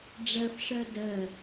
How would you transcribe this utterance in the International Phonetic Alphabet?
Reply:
ɖ͡ʐ ɜ f ʂ ɜ d ɜ

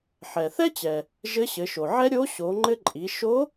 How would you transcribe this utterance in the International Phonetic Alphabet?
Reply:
ħ ɛ˩ θ ɛ˥ t͡ɕ ɛ˩ | ʒ ɘ˧˥ ɕ ɘ˩˧ ʃ o˩ ʕ ɛ˥ ɾʲ o˧˥ ɕ o˩˧ ŋ͡ǃ ɘ˧ ǃʼ i˩˧ ʃ o˧˥

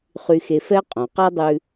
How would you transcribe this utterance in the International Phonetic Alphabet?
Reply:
χ y˧ x e˧ f ɛ˥ qʼ õ˩ q a˥ dˤ ʉ˧

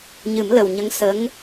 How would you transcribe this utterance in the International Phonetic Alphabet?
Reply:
ɲ ɨ˨˩˦ m l ə˨˩ w ɲ ə˧˥ ŋ s ə˧˥ ŋ

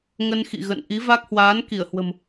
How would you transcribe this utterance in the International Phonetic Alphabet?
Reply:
ŋ ə˧ n x ḭ˧˨ ɣ ə̰˧˨ n ʔ i˨˦ v a˦˥ k̚ h w aː˨˦ n k i˧˩ ə̯ h w ə̤˨˩ m

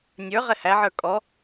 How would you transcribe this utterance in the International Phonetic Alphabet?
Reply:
nʲ ə˞ ʁ ɛ h æ ʕ ə˞ kʼ ɔ

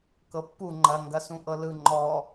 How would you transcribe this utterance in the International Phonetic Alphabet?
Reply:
k ɤ pː u ŋ͡ǃ ɐ ŋ ɡ ɐ s ũ ʔ ɤ l ɯ ŋ͡ǃ ɔ

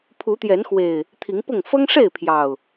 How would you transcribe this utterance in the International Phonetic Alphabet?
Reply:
pʰ u˨˦ t̪ j ɛ˨˦ n x w e˨˩ ɪ̯ | t̪ʰ i˨˦ ŋ p ʊ˥˨ ŋ f ɤ˦ ŋ ʂ e˥˨ ɪ̯ pʰ j ɑ˨˩ ʊ̯

